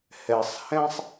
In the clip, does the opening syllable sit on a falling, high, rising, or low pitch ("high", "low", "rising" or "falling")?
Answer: low